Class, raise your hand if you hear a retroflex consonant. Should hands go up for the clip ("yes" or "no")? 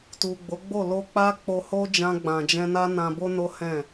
no